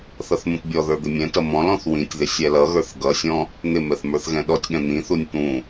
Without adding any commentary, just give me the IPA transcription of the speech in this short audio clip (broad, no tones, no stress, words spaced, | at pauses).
θʌθmũtbʲɔðə˞ d̪ɪmʲɛ̃tʌ mɔ̃l ɔ̃θwĩtʲðɪ sʲɛlʌɣə˞θ ɡʌsʲɔ̃ | n̪ɪmɛθ mə˞θɣɛ̃ɗɔtʲɠɛ̃ n̪ĩθunʲ t̪ũ